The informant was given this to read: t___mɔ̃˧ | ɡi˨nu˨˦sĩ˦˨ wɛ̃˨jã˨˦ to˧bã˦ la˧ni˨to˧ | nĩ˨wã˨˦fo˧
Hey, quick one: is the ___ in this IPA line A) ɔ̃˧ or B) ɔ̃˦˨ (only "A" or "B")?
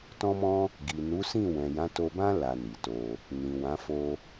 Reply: A